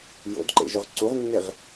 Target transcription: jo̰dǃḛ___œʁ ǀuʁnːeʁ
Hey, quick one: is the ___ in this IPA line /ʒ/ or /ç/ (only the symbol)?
ʒ